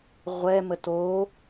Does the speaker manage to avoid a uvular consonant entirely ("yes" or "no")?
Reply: no